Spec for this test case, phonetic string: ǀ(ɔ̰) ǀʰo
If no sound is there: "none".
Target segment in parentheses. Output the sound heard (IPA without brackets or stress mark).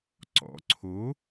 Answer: ɔ̰